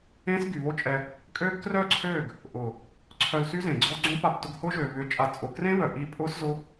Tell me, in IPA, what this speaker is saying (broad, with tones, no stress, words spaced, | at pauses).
ẽː˦sɡy˨βo˦t͡ʃʼɛ˧ | kʼøː˦ɡ krœː˦˨ǀʰøː˦˨ɡ | ʔʊ˨ | ǀʰœ˧lsy˦zẽː˨ ɡ͡ǀɔ˧ ɡ͡ǀõ˦pa˧p tʊ˧ɡhʊː˦ʒøː˨ βʏ˨˦t͡ʃʼa˨ t͡sʼʊ˨krẽ˦βœ˨ ʔi˦ pʼʊː˦szʊ˦